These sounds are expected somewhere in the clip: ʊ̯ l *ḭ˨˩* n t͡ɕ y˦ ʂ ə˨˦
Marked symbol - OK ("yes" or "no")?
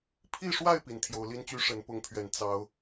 no